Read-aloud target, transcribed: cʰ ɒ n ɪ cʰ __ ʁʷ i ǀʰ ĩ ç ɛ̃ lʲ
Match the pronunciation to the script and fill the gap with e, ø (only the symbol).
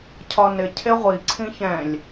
e